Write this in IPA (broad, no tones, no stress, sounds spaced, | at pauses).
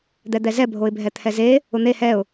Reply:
d̪ ɛ d̪ ɛ z ɛ bʱ o ɪ̯ bʱ ɛ t̪ʰ ɛ z e | ʊ n̪ e h ɛ ʊ̯